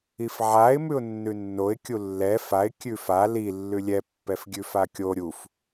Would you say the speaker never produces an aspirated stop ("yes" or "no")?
yes